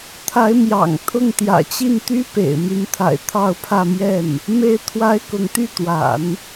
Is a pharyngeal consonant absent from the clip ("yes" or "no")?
yes